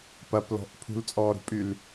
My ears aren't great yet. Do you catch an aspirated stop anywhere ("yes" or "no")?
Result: yes